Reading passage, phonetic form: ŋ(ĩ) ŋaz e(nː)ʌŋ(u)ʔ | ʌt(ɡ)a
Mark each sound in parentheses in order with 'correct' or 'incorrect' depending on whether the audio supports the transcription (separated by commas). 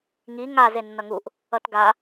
incorrect, correct, correct, correct